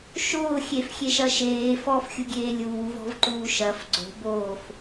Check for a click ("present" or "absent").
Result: present